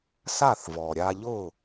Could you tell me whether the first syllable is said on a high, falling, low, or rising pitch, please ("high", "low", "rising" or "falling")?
falling